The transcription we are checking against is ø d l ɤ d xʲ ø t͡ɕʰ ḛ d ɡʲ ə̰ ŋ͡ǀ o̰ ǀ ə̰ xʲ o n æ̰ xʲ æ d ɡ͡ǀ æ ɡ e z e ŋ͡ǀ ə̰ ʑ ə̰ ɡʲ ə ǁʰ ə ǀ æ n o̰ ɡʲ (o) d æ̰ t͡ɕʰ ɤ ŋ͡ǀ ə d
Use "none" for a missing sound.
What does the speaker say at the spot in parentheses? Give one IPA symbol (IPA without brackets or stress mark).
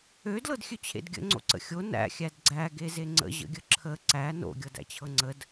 ɤ